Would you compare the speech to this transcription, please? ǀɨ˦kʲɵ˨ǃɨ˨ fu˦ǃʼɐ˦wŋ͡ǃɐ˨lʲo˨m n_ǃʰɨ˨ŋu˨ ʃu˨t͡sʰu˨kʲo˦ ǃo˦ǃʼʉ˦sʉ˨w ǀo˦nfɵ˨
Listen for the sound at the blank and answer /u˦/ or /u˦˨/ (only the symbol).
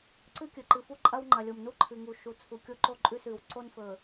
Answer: u˦